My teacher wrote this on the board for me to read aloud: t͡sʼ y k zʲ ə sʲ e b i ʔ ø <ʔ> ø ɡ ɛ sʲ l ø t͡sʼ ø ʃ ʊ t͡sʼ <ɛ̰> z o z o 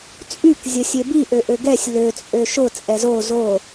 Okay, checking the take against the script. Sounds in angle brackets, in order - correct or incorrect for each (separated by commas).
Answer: correct, incorrect